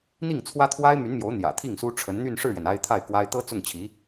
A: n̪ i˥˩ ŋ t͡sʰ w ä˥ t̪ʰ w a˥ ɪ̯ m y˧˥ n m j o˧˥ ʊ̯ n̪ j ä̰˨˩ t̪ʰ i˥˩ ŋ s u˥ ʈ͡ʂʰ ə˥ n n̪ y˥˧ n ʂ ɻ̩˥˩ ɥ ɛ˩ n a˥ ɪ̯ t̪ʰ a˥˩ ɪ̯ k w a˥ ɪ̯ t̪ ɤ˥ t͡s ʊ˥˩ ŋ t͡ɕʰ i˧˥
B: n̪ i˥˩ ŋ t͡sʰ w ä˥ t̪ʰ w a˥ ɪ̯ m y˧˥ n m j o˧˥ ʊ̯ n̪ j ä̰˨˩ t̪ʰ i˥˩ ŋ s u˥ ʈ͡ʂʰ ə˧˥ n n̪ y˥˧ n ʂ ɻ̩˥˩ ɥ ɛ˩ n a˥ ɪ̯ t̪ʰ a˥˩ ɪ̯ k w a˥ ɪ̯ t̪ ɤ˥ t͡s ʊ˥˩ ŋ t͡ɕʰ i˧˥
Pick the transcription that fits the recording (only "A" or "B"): B